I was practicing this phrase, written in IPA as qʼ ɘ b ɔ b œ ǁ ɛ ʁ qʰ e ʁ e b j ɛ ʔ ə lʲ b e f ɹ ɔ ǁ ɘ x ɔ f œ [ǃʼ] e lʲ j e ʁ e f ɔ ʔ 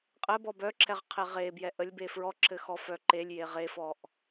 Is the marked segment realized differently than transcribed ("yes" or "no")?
yes